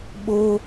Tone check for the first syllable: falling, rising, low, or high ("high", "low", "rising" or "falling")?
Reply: high